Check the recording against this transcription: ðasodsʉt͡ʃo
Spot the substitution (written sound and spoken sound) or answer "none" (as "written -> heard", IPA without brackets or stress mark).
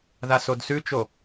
none